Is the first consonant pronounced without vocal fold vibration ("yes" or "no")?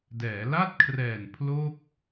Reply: no